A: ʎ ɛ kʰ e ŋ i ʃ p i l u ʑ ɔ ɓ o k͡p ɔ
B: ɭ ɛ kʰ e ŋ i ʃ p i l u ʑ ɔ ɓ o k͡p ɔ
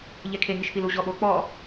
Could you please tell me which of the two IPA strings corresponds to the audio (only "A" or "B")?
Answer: A